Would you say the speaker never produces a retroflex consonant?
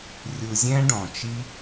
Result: no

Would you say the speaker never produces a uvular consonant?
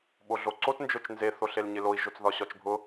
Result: yes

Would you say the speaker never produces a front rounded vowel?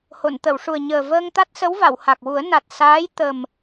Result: yes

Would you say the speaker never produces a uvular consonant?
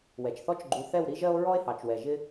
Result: yes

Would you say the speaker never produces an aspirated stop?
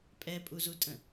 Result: yes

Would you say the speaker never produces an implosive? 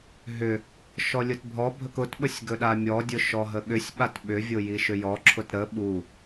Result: no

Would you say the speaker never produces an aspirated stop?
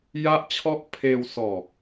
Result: no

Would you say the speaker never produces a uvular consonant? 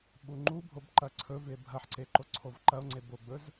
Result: yes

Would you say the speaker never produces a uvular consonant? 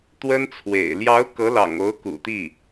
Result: yes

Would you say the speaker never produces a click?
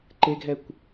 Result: no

